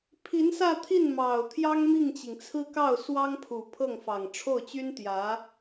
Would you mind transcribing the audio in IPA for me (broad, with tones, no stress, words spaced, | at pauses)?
pʰi˧˥nsä˥˧t̪ʰi˥˩n mɑ˨˩ʊ̯ t̪ʰjɑ˥ŋmi˥˩ŋt͡ɕi˩ŋt͡sʰɹ̩˥ kɑ˥˩ʊ̯swɑ˥ŋpʰu˨˩ pʰɤ˥˩ŋfɑ˨˩ŋ ʈ͡ʂʰo˥˩ʊ̯t͡ɕy˥n t̪jä˧˥